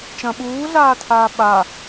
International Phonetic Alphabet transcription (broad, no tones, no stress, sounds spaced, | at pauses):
t͡ʃ ɐ̃ ɓ uː ɮ aː tʰ aː ɓ a